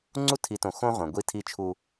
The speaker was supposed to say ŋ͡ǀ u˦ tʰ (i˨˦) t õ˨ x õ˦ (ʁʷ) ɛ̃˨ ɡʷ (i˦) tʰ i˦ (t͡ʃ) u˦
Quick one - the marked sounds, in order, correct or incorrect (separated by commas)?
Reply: correct, correct, correct, incorrect